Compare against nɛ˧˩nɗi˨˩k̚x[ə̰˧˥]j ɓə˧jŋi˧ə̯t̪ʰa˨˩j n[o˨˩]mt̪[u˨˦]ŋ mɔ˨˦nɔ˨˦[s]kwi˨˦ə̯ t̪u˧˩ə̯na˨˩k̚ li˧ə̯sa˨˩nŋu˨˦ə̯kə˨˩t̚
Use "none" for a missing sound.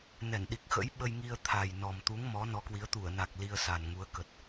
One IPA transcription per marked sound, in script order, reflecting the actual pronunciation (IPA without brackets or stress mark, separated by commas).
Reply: ə̰˧˥, ɔ˨˩, u˨˦, none